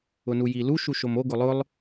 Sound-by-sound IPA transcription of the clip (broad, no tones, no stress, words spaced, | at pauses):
ʊnujilu ʃuʃomo ɡʊlˠʊlˠ